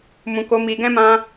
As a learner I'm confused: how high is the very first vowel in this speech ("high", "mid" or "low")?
high